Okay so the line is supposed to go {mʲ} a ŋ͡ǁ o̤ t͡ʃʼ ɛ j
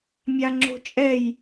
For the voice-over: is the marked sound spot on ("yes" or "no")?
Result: yes